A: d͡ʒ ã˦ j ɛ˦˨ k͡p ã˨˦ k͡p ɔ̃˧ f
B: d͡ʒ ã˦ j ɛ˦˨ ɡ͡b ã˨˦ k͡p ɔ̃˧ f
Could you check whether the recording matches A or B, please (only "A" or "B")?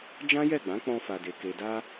B